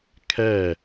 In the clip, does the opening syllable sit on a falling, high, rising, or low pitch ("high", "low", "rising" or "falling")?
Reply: falling